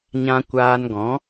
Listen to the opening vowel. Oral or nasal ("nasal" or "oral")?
nasal